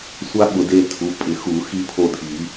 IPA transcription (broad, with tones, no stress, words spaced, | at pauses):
sʷa˦ ɓʊ˨˩˦de˦˨tʰu˩˧˩ pʼɪ˨˩˦xu˨˩˦ xi˦pʰo˦˨dʱi˨˩˦